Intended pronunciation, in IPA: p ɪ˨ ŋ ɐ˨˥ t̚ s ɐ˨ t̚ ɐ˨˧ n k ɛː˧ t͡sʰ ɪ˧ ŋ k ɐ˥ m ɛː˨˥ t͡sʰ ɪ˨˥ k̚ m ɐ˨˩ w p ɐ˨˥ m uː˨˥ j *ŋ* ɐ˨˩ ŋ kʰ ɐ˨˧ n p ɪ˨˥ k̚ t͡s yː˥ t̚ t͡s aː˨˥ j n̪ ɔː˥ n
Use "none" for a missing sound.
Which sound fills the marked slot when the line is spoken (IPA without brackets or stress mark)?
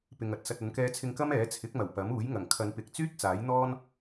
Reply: ŋ